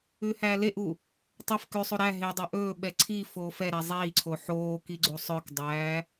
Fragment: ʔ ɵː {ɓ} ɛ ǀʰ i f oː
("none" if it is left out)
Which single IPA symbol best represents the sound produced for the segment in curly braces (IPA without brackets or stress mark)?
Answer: ɓ